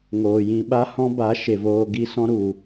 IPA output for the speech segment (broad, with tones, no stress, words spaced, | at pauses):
ŋoː˨jĩ˧ ɓa˦hɔ̃˦ba˨˦ ʃe˨voː˧ɡi˦ sɔ̃˦ɾu˨